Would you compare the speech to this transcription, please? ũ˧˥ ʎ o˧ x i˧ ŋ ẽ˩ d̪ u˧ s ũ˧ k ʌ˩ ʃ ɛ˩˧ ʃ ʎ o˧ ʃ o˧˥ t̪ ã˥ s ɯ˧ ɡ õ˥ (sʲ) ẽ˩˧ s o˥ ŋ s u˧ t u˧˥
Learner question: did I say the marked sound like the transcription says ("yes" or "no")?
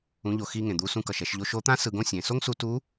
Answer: yes